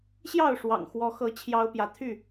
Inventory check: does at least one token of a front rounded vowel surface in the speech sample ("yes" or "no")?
yes